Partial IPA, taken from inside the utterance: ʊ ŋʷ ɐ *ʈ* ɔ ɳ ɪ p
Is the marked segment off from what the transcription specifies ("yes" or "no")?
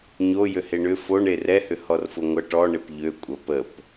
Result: no